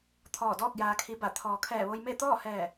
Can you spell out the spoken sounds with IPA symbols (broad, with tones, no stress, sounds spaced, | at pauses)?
t̪ʰ ɔː˧˩ d ɔː˥˨ k̚ j aː˧ kʰ i˧˥ b a˧˩ t̪ʰ ɔː˩ kʰ ɛː˧˩ ʋ o˧ j m e˥˨ t̪ ɔː˥˨ h ɛː˧˩